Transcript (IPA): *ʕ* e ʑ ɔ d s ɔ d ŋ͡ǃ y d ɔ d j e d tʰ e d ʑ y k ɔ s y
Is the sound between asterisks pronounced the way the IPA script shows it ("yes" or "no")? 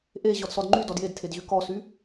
no